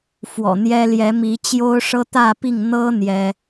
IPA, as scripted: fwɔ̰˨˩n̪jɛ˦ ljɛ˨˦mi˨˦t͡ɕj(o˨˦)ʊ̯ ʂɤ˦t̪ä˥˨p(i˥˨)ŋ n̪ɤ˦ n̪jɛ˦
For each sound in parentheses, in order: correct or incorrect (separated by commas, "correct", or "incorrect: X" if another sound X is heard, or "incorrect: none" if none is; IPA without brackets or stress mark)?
incorrect: o˦, correct